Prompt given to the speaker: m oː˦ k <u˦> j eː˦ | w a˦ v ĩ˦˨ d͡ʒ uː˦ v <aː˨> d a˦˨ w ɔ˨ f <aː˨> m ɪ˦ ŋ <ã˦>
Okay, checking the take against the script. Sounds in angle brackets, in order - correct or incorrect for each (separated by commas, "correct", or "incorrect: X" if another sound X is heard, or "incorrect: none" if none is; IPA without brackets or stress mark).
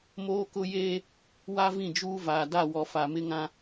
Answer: incorrect: ʊ˦, correct, incorrect: a˨, correct